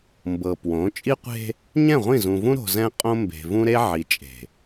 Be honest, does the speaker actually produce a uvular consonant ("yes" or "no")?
yes